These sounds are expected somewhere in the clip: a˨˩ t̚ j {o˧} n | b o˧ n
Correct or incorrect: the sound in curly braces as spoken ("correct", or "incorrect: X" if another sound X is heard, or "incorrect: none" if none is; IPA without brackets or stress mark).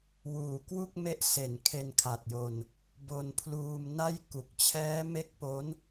correct